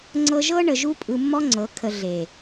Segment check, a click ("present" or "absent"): present